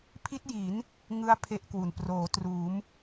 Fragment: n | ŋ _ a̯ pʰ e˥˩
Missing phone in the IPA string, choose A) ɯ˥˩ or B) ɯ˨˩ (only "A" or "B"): A